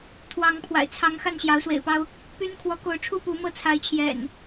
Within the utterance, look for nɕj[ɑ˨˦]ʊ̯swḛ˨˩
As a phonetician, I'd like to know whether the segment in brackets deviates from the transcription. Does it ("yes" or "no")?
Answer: no